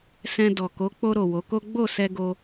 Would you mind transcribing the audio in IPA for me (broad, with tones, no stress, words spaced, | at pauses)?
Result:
sɛ̃˧ dɔ˨ko˨˦ k͡po˧ɾo˨ wo˨˦ko˦ ɡ͡bo˦˨sɛ˧ɡo˧